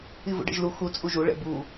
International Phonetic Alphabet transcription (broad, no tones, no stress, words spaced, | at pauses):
ivṵɖɛ̰ʒlu xu t͡sʼuʒu ɭɛ̰bu